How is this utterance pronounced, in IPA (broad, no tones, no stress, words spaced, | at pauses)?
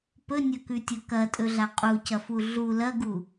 pɵnʲɵkʉtʲɵ kɐtʼɵɮa qʼucɐfu ɮu lɐɡu